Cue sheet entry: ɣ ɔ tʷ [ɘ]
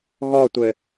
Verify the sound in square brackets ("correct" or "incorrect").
correct